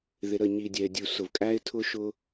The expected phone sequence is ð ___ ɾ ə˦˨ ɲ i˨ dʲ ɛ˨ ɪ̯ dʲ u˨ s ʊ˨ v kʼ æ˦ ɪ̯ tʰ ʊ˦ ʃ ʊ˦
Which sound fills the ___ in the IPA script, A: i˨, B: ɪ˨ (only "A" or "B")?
B